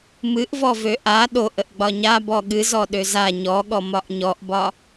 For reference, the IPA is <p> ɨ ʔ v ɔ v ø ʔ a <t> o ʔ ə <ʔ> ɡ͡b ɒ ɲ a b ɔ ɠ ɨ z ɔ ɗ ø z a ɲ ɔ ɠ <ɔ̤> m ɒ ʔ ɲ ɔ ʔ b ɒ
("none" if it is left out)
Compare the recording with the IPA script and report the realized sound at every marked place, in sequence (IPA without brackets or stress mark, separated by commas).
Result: m, ɗ, ʔ, ɔ